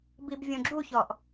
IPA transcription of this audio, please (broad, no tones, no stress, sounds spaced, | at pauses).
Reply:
b i b vʲ õ ɡ͡ǁ u ç ɔ ʔ